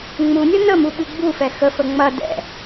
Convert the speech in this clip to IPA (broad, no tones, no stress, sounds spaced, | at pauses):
ŋ͡m u nʲ ʌ n ə m u ɓ ɨ ɡ͡b u f ɛ x ə f ə ŋ͡m ɐ d ɛ̰